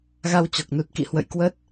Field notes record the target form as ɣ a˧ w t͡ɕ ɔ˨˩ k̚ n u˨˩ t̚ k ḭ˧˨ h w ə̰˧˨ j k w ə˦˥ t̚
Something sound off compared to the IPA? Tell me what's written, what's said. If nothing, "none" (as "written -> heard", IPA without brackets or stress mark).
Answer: none